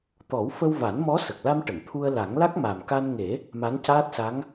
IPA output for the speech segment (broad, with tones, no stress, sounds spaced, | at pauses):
t̪ ɔ˨˩˦ w f ə˧ w v a˨˩˦ n m ɔ˧˥ s ə˨˩ k̚ l a˧ m ʈ ə˨˩˨ ŋ t̪ʰ u˧ ə̯ l a˨˩˦ ŋ l a˦˥ k̚ m a˨˩ m k a˧ n ŋ e˨˩˦ | m a˧˥ n c aː˦˥ t̚ s a˧˥ ŋ